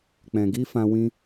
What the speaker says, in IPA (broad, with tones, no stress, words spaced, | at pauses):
k͡pɛ̃˨ɡi˦fã˧ wĩ˦